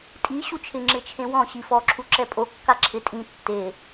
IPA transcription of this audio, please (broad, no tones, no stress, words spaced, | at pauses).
tʼi ɕut͡ʃʰɪ ŋ͡ǁɪt͡ʃʰẽwɔ̃ ɕifɔǁʰu ǁɛpʼo kːaǁʰɪ tʼĩ tːe